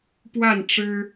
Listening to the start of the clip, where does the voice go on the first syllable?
falling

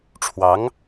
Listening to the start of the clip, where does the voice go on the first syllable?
rising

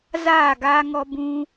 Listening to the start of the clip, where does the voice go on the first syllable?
falling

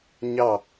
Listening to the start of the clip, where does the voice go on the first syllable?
falling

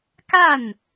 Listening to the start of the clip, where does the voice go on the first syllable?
falling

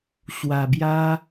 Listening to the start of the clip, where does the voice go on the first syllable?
low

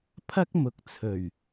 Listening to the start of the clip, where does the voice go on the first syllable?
high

